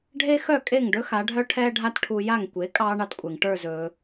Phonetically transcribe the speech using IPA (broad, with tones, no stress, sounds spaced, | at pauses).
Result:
ɖʱ e˥ x œ˥˩ kʼ e˥˩ ŋ ɖ ɵ˥ x a˩˥ ɖʱ œ˥ ʈʰ ɛː˥ ɖʱ a˥ t ʈʰ u˧ j a˥˩ ŋ kʷ e˩˥ kʼ ɑː˧ ɳ ɑ˧ t kʷʼ e˩ ŋ ʈ ə˞˥˩ z ɵː˩